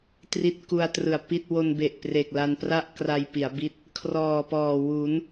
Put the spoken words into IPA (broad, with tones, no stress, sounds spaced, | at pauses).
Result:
t r i˦˥ t̚ k u˧ a̯ t r ɯ˨˩ a̯ p i˥˩ t̚ w o˧ n b e˨˩ ʔ p r e˨˩ k̚ l a˧ n p r a˥˩ ʔ k r a˧ j p i˩˦ a̯ b i˦˥ t̚ | kʰ r ɔː˨˩ p ɔː˨˩ w u˩˦ n